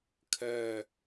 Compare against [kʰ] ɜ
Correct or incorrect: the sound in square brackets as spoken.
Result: correct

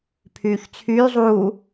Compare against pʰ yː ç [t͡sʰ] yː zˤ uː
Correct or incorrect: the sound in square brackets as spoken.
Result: correct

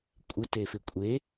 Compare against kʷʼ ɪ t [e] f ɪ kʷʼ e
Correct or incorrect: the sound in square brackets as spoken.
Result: correct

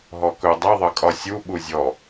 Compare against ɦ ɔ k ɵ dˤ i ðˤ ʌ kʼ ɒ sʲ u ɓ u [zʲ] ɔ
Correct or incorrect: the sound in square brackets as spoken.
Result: correct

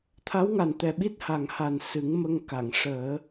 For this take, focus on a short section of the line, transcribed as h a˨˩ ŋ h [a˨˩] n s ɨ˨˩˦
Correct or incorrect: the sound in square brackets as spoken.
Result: correct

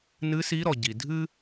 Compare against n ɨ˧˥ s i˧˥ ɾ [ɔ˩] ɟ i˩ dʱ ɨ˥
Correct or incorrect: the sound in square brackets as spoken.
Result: correct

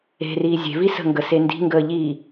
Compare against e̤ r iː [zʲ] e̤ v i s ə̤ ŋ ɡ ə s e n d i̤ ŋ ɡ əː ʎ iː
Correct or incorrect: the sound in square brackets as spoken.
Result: correct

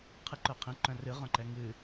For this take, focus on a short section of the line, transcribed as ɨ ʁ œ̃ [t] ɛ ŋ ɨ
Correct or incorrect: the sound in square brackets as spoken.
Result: incorrect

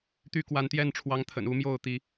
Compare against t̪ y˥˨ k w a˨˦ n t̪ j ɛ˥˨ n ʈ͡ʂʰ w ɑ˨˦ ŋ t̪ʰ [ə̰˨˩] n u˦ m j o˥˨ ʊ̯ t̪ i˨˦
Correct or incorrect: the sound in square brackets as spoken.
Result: correct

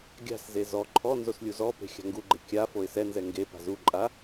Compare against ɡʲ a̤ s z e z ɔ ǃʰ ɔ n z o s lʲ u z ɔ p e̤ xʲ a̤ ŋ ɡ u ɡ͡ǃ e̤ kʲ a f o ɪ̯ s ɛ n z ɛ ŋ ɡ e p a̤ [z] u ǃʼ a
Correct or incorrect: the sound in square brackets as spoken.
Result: correct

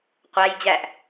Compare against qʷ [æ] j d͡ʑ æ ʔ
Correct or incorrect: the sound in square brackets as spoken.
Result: correct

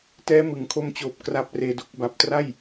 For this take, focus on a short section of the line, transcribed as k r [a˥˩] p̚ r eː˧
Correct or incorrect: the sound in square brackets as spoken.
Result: incorrect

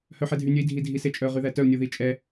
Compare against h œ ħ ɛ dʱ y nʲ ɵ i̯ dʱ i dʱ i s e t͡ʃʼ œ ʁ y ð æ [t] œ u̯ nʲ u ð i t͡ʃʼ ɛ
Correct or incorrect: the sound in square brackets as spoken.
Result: correct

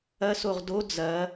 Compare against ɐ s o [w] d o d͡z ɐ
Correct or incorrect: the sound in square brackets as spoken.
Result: incorrect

